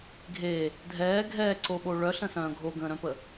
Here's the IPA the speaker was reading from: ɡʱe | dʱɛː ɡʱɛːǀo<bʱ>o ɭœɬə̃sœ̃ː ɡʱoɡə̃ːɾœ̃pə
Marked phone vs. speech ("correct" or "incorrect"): incorrect